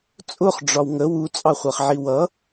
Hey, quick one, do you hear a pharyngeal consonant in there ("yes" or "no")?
yes